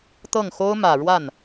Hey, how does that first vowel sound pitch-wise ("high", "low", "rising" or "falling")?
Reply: falling